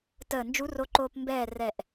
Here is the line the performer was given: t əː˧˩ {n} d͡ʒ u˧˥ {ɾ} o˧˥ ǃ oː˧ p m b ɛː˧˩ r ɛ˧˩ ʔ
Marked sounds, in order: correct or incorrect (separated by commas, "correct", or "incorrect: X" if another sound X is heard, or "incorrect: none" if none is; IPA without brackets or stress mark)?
correct, incorrect: r